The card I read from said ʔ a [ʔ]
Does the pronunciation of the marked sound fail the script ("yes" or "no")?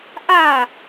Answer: yes